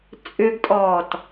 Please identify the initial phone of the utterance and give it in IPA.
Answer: t͡sʼ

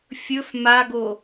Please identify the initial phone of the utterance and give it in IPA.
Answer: fʲ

